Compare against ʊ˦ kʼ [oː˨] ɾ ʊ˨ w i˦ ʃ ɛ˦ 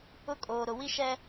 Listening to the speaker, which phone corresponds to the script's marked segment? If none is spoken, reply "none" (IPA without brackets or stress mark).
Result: oː˨